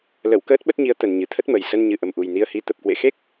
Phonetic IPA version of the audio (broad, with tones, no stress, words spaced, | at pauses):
lə˧˩w kəː˦˥t̚ɓə˦˥t̚ɲi˨˦ə̯ t̪ə˨˩nɲɨ˨˩t̪ʰə˦˥t̚mə˨˩j sə˧n ɲɨ˨˩ʔə˨˩mʔu˨˩j ni˧ə̯hi˨˦ t̪ə˨˩p̚kwḛ˧˨xe˦˥k̚